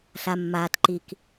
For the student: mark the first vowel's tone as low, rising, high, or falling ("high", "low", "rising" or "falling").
low